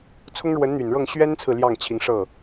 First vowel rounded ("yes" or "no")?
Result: yes